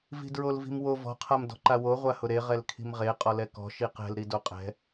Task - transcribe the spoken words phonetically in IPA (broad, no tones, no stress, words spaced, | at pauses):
vi̤dɹolvi̤mwo vɔ̤ qʰamdɔ̤ǃawo ʁʷahʊɾe ʁɛlkʰi̤mʁe qʼɔlɛkɔ̤ ʃiqɛ̤l ɾidoqʼɛ̤